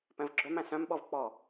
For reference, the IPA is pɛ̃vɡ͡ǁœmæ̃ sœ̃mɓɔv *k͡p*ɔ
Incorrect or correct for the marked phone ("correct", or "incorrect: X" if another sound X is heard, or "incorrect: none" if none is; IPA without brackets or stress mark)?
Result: correct